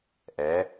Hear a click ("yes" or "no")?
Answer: no